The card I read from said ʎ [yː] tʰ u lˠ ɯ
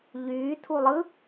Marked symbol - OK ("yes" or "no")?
yes